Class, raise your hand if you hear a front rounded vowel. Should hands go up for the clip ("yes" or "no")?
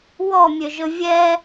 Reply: yes